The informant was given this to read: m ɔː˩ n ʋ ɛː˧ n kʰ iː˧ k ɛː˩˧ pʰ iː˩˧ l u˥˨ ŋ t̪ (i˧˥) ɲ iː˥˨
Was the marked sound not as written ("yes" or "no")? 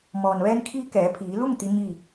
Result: no